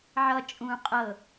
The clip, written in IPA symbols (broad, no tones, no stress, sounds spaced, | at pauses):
ʕ ʌ t͡ʃʼ ũ qʼ ɤ